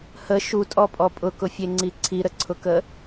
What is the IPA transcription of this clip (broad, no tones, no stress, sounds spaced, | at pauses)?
h ə ʃ u tʼ ɔ pʼ ɔ pʼ ʊ k ʊ fʲ e ŋ͡ǀ i ǀʰ i ɾ ə ǀʰ ʊ k ə